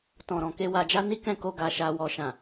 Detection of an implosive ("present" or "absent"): absent